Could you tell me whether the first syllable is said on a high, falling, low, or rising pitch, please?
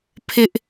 high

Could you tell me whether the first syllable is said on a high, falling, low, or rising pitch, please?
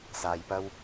low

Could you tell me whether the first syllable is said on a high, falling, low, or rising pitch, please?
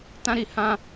high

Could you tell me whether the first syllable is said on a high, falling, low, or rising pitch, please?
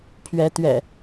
rising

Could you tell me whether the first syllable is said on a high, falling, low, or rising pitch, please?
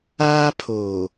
high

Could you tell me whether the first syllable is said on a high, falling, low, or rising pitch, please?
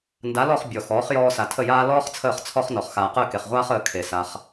rising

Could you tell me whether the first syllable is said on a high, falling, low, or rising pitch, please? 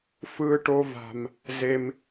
high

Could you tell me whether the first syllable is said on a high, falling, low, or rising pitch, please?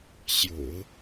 low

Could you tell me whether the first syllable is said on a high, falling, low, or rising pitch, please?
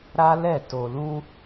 high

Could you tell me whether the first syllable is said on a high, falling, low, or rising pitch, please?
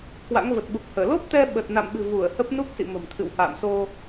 rising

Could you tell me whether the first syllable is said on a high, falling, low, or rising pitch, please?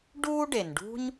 high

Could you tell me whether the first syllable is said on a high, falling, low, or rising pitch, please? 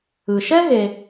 low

